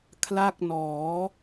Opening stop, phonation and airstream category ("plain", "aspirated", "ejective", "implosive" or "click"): aspirated